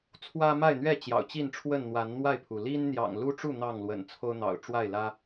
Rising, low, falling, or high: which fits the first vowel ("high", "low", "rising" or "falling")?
high